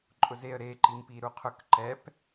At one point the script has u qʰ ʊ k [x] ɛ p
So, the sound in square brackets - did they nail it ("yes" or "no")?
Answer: no